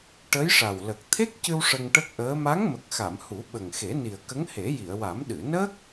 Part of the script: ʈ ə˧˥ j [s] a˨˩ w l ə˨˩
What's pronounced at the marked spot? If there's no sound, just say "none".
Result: ʂ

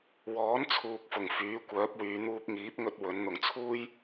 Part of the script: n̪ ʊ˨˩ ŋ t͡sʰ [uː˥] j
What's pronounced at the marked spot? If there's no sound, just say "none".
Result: uː˥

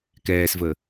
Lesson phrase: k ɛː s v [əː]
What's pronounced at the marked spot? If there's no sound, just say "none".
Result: əː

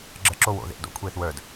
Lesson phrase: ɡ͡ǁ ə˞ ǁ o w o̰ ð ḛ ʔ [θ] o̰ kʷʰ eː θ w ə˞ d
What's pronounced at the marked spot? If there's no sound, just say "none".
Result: d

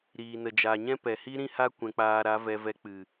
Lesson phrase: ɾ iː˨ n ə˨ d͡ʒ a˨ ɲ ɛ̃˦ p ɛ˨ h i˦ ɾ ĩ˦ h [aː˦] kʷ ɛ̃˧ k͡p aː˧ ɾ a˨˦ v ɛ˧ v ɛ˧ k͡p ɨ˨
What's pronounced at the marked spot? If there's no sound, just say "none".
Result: a˦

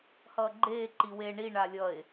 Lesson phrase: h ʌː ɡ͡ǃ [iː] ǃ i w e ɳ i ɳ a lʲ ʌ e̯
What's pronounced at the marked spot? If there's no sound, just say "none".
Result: eː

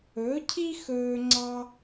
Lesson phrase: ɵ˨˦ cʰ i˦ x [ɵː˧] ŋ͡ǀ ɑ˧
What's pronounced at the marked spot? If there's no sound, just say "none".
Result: ɵː˧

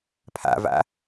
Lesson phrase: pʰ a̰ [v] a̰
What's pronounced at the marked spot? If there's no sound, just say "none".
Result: v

